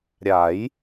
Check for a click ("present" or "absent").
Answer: absent